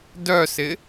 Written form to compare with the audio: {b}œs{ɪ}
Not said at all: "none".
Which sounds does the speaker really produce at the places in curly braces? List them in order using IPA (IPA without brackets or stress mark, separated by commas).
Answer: d, ɪ